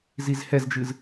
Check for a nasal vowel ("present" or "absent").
absent